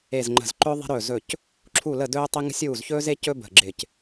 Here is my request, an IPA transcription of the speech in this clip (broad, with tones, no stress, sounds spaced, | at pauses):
e˧˩ z ŋ͡ǃ ə̤˧˩ z ǃ ɵ˧ ðˤ e̤˧ ɾ ɵː˧˩ z ɵ˧˩ c | ǁʰ u˧˩ l ə˧˩ d ɵː˧ tˤ e˧ ŋ ə̤˧ sʲ uː˧˩ z ç ɵː˧ z e˧ c ɵ˧ b ə̤˧˩ ɡ͡ǁ ɪ˧˩ c